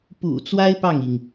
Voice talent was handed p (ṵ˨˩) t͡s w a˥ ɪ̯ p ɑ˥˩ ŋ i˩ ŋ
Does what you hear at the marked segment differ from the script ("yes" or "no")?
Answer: no